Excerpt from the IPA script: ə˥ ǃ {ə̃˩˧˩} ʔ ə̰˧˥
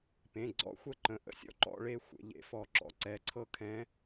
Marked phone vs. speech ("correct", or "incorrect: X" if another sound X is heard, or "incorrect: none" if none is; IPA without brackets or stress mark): correct